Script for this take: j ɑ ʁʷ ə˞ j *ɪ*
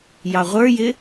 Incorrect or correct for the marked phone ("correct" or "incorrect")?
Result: correct